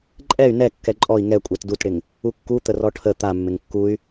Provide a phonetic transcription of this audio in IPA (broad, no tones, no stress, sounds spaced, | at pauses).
ǃʼ ɛ y̯ n ɛ kː ɛ ǃʼ ɔ i̯ ŋ ɛ kʷʼ ɛ t d u t ɽ ɪ ŋ | u kː u t̪ ə r ɔ ʈʰ ə t̪ a mː ɪ ŋ kː u y̯